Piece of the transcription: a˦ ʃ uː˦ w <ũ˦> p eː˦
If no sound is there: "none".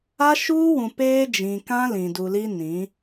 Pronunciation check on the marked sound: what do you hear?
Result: ũ˨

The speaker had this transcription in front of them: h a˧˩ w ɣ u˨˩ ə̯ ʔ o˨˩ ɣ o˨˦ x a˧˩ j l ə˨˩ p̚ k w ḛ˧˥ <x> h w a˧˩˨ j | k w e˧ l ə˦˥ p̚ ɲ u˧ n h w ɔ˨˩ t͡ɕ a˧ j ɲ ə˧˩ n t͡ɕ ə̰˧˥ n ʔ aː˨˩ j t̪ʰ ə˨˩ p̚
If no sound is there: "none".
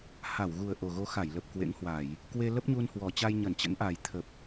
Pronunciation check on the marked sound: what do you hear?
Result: ŋ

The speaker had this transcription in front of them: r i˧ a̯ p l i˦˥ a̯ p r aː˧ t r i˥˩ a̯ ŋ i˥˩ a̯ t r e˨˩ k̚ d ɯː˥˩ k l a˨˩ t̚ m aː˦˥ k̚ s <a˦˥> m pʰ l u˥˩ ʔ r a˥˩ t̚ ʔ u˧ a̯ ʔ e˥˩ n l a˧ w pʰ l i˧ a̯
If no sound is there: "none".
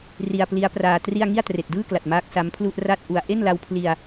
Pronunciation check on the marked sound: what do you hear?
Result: a˦˥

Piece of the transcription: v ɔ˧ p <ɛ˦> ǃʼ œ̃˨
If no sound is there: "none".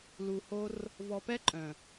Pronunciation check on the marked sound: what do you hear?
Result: ɛ˦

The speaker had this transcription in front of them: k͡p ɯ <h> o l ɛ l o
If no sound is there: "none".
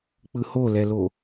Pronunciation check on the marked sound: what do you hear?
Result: h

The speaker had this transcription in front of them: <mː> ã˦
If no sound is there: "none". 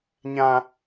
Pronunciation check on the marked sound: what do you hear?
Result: ɲ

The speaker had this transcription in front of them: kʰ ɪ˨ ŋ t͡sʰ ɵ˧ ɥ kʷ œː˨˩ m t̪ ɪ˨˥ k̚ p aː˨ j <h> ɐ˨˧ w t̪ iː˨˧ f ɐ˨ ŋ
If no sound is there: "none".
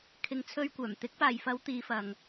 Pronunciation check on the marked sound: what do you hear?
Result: f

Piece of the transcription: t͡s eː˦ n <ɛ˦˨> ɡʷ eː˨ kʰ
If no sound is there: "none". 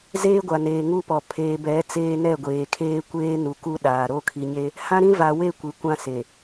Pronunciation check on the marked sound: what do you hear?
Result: ɛ˦˨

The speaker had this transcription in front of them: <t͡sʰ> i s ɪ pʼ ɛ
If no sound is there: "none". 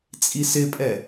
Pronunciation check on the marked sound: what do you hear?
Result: t͡sʼ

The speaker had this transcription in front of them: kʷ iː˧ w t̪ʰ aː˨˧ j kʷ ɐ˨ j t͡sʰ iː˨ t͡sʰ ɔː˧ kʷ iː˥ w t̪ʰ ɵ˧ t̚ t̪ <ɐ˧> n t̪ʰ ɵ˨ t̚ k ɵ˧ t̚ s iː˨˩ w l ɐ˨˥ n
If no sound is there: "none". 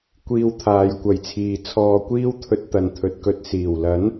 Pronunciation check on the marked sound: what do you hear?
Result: ɐ˨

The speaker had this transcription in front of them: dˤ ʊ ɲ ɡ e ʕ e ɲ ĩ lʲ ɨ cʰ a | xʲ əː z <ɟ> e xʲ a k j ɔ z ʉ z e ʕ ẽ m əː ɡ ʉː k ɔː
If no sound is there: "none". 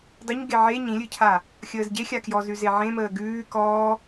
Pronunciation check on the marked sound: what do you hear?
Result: ɟ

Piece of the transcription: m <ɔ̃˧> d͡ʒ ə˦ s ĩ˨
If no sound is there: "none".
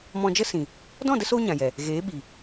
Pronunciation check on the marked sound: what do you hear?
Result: ɔ̃˧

